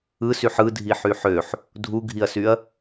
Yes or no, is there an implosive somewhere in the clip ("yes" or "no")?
no